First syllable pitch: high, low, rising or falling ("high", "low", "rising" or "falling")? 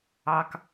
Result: low